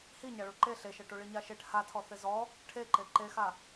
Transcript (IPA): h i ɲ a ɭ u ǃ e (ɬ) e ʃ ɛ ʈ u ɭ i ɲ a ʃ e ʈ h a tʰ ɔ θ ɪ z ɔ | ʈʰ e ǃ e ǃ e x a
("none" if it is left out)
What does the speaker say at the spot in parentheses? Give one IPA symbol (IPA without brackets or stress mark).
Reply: ɬ